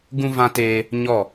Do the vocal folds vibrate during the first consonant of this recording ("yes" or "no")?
yes